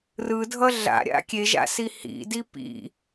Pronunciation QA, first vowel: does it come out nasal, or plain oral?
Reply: oral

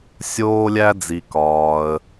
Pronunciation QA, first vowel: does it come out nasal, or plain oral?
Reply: oral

